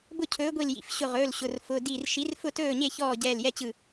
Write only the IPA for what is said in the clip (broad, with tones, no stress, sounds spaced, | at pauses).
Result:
b ʊ˥˨ cʰ ɵː˨˥ ɡʷ i˧˩ l j ḭ˩˧˩ f ɕ ʊ˧˩ ʁ ɵː˩˧˩ l ɕ ʊ˩˧˩ r f ʊ˩˧˩ d i˧˩ r ʃ i˨˥ r f ʊ˥˨ t ɵː˥˨ ɲ e˥˨ ç ɔː˥˨ ɟ ɛː˧˩ l j ɛ˥˨ t͡ɕ ɯ˧˩